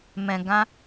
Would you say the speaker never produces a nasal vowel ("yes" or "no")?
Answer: no